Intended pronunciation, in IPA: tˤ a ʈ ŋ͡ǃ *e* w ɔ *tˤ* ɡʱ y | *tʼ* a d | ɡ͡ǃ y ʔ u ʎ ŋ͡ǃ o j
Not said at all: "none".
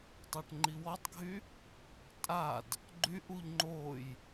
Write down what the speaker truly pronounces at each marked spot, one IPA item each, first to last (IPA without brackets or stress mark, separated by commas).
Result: i, tˤ, tʼ